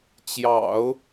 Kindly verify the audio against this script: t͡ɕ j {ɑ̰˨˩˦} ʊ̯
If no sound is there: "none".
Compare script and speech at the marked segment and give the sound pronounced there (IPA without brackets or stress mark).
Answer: ɑ̰˨˩˦